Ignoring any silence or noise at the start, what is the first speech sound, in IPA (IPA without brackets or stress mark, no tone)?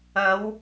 ɐ